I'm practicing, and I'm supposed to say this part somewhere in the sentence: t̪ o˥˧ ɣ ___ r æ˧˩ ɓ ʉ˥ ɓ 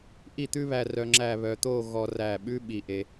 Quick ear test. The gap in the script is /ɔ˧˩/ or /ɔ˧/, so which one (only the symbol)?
ɔ˧